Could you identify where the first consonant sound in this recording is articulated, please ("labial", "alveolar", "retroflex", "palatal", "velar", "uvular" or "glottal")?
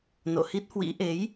alveolar